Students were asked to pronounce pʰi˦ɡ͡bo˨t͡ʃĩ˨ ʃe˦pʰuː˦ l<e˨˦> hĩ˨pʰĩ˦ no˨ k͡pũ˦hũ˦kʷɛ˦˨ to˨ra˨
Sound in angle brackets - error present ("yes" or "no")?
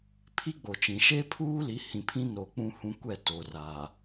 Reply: yes